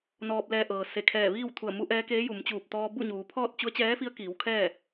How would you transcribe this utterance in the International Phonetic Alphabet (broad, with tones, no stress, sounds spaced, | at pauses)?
n ɔː˧ p̚ l ɛː˧ ʔ ɤː˩ s e˧˩ kʰ ɛː˧˩ ʋ iː˥˨ w t̪ʰ u˧˩ ə̯ m u˧˥ ʔ ɛː˧˥ k eː˧˥ j u˩˧ m t͡ɕ uː˧˩ p̚ t̪ ɔː˧ b u˥˨ ɲ uː˩˧ pʰ ɔː˥˨ t̚ t͡ɕ u˧˥ ə̯ t͡ɕ ɛː˧˥ f i˧˥ ə̯ k iː˩˧ w kʰ ɛː˥˨